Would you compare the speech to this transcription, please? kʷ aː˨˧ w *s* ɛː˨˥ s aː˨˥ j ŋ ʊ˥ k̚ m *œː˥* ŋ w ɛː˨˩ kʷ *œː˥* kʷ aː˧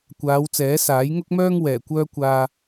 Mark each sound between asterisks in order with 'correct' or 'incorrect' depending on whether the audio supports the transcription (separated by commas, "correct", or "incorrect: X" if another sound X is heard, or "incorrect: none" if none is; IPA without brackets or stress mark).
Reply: incorrect: t͡s, correct, correct